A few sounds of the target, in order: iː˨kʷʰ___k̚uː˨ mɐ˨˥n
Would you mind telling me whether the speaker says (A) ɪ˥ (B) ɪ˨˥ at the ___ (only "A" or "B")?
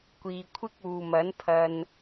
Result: A